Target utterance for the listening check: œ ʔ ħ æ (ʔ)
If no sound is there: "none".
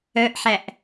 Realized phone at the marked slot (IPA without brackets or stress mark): ʔ